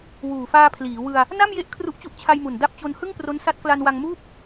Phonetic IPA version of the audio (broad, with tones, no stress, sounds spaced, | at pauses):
w uː˨˩ f aː˧ pʰ l iː˩˦ w ɯ˧ a̯ | n a˥˩ m j e˦˥ ʔ kʰ r u˦˥ ʔ t͡ɕ u˦˥ ʔ t͡ɕʰ a˧ j m u˨˩ n d a˦˥ p̚ t͡ɕ o˧ n h ɯ˥˩ ŋ p r o˦˥ n s a˦˥ t̚ k l a˧ n w a˧ ŋ m uː˥˩ p̚